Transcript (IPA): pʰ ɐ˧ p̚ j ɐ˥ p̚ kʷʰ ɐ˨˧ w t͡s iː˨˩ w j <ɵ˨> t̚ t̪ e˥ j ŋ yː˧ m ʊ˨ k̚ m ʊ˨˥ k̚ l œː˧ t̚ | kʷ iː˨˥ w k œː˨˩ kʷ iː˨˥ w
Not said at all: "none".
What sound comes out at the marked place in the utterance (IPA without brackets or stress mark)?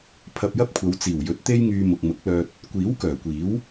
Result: ɵ˨˥